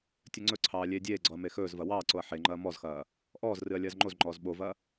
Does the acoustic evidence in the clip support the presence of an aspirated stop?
yes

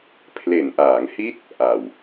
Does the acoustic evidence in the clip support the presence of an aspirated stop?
yes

